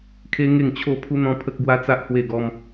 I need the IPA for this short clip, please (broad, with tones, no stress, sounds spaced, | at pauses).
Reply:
kʰ e˦ ŋ e˥˧ ŋ t͡ɕʰ o˥˧ pʰ u˦ n̪ ɔ̃˦ pʰ ə˦ k̚ ɡ w a˦ t͡s a˦ ʔ h w e˥˧ ɡ ɔ˦ m